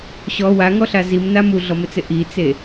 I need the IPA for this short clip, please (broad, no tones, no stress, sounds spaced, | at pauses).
ɕ ɔ w a ŋ ɔ ɬ a z i m n a m u ɮ ɔ m ɪ t͡s ɪ ʔ i t͡s e